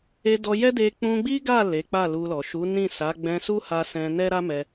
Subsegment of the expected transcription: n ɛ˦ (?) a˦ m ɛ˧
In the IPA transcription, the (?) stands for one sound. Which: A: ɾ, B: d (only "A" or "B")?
A